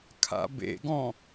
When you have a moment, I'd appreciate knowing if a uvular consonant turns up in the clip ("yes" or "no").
no